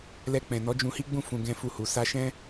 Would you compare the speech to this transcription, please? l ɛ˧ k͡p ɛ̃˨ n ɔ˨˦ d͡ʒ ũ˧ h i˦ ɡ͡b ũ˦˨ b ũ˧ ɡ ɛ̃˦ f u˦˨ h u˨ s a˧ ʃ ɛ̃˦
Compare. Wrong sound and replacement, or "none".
b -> f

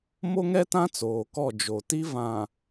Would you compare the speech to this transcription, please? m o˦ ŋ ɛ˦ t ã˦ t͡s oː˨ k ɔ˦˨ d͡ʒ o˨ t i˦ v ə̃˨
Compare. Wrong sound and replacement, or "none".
ə̃˨ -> ã˨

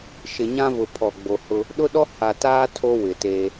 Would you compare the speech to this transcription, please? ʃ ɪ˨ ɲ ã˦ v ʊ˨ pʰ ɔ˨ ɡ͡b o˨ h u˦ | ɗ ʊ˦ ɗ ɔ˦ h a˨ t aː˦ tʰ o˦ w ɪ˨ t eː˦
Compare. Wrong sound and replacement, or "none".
u˦ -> ʊ˦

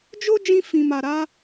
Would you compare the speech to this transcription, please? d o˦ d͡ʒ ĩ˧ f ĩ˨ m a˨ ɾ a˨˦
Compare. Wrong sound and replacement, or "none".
d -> d͡ʒ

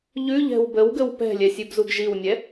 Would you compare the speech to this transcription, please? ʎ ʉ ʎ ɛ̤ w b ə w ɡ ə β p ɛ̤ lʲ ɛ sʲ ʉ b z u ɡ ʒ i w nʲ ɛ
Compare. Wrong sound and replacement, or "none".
β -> w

